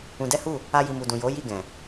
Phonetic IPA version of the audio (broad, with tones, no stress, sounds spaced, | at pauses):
ũ˧ d ɛ˦ h u˦˨ | a˦ j i˧ m u˨ d ũ˨ j o˨˦ j i˦˨ ɡ ɛ̃˨